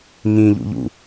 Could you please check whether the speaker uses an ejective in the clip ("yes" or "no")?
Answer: no